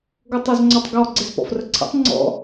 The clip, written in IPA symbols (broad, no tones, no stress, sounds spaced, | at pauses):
ɡ o tˤ o z ŋ͡ǀ ɔ tˤ ɡ ɔ ɡ͡ǀ e z p ɔ̰ f r ə ǀʰ ḛ tˤ ŋ͡ǀ ɔ̰